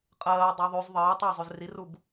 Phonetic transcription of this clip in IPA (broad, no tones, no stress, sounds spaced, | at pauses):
qʼ ɜː dˤ o ðˤ ʉ z ðˤ əː tˤ əː zˤ ʉ z r i r u b